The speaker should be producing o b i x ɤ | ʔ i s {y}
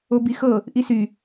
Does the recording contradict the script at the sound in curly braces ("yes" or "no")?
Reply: no